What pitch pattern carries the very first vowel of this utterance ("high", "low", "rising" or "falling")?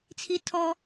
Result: high